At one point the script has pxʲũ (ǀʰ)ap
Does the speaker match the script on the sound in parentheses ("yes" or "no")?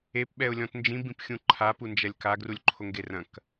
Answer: no